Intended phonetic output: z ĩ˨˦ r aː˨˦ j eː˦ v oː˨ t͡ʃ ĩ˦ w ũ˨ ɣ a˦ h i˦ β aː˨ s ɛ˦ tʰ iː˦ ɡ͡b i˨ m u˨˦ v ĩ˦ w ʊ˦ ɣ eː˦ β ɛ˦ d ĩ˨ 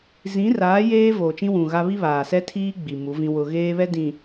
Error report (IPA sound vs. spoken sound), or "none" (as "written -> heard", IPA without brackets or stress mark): h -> β